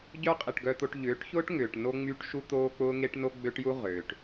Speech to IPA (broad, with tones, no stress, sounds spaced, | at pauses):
ɟ œ˦ qʼ i˨ ʈ ɡ œ˦ t̪ o˦ ʈ ʎ ʏː˨˦ ʈ ç ʊː˦ ʈ ŋ ʏː˨ ʈ n o˦ ŋ͡m y˦ ʈ ʃ u˦ t̪ oː˦ k͡p ʊː˦ ŋ e˦ ʈ n o˦ ɡ͡b ø˦ ʈ j u˦ ʁ ʏː˨ ʈ